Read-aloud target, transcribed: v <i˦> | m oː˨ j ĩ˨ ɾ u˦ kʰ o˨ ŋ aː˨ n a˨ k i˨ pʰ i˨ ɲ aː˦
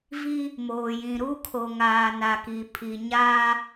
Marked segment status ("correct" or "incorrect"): correct